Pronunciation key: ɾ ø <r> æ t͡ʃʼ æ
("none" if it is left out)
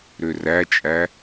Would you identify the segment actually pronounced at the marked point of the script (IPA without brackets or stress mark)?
r